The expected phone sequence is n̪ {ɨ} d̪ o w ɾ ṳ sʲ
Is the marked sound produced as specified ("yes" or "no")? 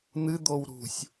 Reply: yes